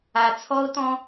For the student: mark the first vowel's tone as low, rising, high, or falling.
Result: low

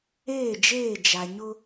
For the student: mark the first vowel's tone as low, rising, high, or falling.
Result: falling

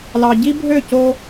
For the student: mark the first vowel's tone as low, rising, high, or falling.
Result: low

